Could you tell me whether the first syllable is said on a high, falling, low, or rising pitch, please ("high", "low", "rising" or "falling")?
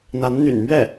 rising